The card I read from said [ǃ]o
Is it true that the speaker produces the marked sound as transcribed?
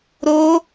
no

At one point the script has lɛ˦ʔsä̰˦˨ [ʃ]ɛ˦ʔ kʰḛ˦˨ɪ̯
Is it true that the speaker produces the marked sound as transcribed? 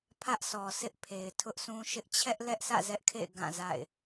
no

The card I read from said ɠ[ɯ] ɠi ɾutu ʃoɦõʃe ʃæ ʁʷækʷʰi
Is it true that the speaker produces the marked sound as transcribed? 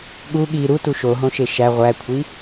no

